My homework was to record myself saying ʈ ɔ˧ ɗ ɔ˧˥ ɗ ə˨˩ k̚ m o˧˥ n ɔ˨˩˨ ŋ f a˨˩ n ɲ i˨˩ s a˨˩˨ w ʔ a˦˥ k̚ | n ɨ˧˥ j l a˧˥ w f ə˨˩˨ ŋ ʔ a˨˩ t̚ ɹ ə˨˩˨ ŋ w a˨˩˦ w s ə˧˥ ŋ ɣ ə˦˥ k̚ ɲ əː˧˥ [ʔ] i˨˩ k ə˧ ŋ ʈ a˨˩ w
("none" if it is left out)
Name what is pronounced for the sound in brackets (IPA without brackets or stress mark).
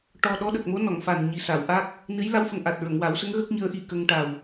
ʔ